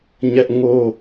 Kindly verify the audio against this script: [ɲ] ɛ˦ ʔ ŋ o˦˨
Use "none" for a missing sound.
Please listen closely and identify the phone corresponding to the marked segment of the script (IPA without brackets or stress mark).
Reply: ɲ